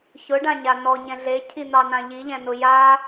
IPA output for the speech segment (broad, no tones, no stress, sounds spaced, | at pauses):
ç ʊ ɖ ã ɲ a n ɔ ɲ ɛ̃ ɮ e cʰ i n̪ ɑ n ã ʎ i ʎ ɛ̃ n ʊ j a